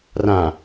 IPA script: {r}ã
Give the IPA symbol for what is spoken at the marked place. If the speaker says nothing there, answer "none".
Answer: r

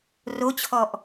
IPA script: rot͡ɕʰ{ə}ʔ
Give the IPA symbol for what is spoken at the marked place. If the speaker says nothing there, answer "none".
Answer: ɔ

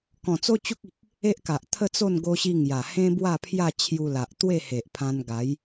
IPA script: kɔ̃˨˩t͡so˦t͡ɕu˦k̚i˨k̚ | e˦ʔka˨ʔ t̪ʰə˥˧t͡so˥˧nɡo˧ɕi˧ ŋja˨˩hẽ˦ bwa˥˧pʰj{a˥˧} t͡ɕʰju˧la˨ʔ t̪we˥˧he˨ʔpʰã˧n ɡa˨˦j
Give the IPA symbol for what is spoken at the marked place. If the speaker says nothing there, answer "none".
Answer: a˥˧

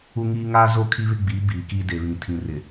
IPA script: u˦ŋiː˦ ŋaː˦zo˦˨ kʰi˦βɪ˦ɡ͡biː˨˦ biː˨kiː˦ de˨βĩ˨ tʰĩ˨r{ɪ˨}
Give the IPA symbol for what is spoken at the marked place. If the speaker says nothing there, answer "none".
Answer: ɪ˨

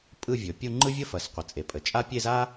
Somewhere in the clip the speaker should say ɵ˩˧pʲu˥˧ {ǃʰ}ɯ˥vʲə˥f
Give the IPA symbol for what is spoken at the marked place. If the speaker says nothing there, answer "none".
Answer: ŋ͡ǃ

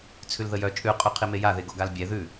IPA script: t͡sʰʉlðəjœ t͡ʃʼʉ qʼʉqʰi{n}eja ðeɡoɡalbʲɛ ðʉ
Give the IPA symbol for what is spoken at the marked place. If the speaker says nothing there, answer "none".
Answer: m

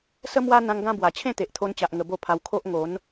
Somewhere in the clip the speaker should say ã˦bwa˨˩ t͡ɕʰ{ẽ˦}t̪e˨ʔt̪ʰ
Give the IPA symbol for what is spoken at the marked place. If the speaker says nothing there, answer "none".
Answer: ẽ˥˧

